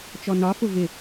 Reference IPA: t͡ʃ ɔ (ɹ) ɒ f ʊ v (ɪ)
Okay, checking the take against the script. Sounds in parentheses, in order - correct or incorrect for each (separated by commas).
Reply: incorrect, correct